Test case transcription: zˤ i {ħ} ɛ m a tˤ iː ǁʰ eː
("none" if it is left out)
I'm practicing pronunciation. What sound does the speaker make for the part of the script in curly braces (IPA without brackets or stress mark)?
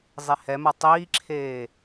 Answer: h